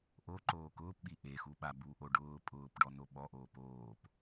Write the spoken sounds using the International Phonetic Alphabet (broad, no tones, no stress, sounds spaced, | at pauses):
ʔ o ǃ oː k ʊː p ɓ i ʔ e x u ɓ a b u ʔ o ɖ ʊː pʼ ʊː p ɖ ɔ n o ɓ ɔ ʔ oː p oː p